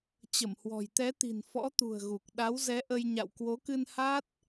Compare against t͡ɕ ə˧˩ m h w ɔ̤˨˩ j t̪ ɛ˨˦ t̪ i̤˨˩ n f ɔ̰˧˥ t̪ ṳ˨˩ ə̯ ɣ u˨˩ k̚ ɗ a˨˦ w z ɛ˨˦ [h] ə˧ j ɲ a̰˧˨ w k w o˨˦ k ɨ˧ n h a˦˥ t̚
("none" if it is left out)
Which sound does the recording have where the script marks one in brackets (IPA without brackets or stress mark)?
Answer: ʔ